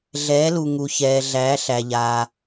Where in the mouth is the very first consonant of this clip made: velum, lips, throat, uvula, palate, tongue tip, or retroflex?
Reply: tongue tip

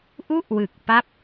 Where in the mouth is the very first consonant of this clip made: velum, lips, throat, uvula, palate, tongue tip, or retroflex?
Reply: throat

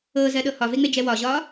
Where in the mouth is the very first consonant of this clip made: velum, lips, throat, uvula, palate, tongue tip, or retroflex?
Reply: tongue tip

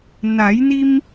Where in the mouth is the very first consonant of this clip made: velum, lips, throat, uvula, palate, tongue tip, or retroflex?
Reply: tongue tip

